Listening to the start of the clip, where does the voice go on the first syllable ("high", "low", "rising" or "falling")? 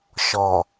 low